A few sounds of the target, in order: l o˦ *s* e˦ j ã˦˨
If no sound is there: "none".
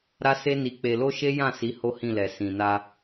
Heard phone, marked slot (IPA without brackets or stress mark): ʃ